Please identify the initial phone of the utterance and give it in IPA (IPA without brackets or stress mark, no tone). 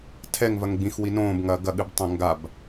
tʰ